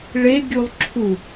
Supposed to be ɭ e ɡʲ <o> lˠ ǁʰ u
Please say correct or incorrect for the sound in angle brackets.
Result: incorrect